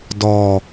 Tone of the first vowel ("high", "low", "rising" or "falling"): low